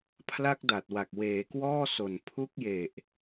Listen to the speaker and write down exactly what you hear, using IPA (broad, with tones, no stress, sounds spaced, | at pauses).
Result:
pʰ l a˦˥ k̚ d a˨˩ t̚ w a˨˩ k̚ w eː˩˦ k w ɔː˥˩ s o˨˩ n pʰ u˦˥ k̚ j e˨˩ ʔ